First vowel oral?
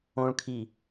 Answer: no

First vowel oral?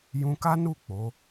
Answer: no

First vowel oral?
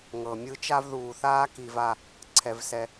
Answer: yes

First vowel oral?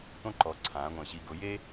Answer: no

